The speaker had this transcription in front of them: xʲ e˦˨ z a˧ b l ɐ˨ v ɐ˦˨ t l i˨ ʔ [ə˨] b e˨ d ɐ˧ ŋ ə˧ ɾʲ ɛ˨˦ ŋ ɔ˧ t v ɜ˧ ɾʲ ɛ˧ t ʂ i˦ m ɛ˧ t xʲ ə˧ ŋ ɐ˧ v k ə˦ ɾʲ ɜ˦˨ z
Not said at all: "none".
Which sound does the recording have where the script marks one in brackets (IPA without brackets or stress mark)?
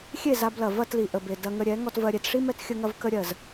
ə˨